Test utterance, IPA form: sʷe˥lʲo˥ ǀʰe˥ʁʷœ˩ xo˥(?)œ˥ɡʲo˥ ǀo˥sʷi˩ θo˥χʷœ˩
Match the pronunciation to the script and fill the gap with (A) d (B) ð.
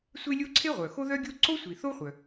B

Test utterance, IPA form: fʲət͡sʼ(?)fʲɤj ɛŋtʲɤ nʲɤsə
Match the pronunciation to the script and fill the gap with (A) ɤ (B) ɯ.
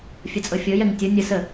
A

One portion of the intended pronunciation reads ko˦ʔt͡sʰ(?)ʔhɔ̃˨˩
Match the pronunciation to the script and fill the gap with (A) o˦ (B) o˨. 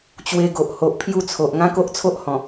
A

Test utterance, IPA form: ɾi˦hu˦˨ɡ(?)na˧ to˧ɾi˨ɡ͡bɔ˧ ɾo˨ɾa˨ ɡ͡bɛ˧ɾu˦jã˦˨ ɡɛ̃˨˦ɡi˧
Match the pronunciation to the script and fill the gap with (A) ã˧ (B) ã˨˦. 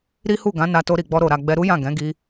B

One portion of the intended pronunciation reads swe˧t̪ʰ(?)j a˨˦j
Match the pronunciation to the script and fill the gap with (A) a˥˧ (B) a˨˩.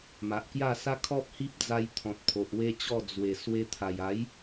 B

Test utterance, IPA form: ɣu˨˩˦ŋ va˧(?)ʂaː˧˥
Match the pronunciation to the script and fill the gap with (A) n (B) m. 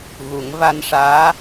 A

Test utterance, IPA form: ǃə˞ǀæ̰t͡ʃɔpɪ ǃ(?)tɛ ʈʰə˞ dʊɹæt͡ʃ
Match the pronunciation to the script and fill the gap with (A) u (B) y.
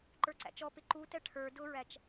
A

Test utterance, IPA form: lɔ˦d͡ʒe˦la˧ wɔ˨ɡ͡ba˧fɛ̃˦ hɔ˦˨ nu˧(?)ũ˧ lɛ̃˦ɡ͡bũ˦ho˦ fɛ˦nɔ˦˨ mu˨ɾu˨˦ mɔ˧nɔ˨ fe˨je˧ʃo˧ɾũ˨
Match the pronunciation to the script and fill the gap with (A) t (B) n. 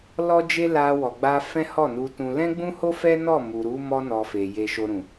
A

